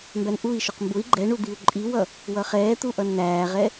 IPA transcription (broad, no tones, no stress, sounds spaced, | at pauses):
m b æ n ʔ u i̯ ʃ ʊ q m b ʊ i̯ ɡ͡ǃ ɛ ɳ u d̪ i u̯ ǃʼ i w ʌ | w ʌ χ ɛː t̪ u ʔ ʌ n n̪ æː ʁ ɛ